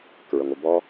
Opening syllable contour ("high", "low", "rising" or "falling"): low